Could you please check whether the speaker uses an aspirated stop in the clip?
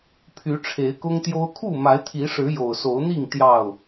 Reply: yes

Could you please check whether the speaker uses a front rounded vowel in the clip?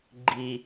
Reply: no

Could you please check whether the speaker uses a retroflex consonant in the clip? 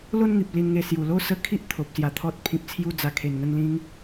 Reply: no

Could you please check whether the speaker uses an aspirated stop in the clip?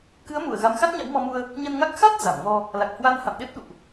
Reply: no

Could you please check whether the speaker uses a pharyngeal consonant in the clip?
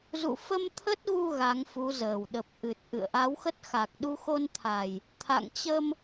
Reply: no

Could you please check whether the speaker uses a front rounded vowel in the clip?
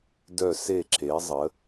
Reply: yes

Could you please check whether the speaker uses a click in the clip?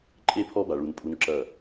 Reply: yes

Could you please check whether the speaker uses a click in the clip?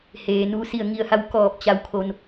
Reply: no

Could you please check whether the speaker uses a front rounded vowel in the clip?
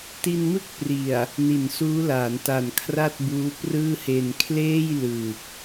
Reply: no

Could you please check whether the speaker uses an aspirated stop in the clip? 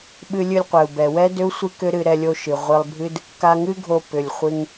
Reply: no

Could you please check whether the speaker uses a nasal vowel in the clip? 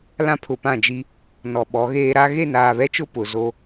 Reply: yes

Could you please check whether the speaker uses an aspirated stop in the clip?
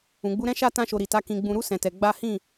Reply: no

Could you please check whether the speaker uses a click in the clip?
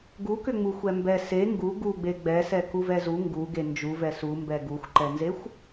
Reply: yes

